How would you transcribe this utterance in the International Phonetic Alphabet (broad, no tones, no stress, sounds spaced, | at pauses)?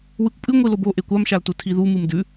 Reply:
w ɨ kʷ pʼ ɨ ŋʷ i l o b o ʔ e kʷ a m ʃ a l t u tʰ i ð u m ɨ m d ʉ